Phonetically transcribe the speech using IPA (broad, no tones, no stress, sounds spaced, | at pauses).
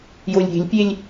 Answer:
j o lʲ ɾʲ e̤ lʲ pʲ e lʲ